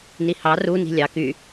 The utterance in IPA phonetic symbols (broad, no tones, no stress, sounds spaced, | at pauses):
n i h ɑ r u n i̤ lʲ ɑ k y